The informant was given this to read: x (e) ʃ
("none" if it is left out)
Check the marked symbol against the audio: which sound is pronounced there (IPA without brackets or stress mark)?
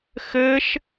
ɘ